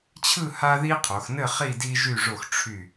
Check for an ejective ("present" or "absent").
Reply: absent